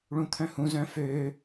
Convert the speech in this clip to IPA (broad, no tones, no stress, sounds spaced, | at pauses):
ɭ ũ t̪ʰ œ̃ h ũ z œ̃ f ø